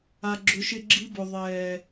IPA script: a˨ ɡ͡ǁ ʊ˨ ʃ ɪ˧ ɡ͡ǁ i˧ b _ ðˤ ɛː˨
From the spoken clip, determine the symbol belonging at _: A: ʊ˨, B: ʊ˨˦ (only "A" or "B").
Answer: A